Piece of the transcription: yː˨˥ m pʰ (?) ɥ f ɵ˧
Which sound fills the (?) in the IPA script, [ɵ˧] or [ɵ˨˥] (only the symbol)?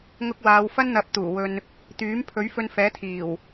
ɵ˨˥